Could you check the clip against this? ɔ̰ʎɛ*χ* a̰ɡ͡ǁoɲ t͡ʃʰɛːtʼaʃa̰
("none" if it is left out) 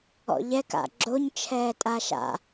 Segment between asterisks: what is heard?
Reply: k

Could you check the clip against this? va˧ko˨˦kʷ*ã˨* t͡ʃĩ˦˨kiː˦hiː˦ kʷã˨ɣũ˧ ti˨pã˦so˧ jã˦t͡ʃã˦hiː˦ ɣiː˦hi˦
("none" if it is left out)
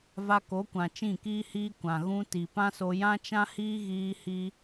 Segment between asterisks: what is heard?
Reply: ã˨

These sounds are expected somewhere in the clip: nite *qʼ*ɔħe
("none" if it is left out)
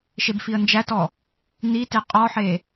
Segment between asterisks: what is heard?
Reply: qʼ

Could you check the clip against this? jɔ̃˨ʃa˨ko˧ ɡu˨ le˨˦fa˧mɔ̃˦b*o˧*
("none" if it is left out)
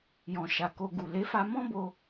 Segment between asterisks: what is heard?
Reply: o˧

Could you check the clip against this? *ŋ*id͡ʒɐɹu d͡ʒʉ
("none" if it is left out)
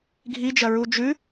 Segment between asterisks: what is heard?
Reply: ɡʱ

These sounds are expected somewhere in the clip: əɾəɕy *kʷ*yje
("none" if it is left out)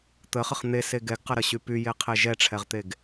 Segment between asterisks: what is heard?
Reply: p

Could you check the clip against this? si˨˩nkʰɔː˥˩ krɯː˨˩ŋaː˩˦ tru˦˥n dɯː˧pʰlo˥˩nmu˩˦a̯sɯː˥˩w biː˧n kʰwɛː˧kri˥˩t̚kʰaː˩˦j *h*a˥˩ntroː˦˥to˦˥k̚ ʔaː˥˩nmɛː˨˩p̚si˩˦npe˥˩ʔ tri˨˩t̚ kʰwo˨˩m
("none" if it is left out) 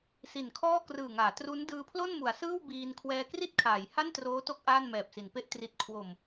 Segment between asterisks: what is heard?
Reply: h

